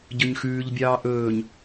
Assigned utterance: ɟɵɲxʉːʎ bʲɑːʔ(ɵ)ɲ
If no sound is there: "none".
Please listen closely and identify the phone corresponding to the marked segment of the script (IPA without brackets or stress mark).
ɵː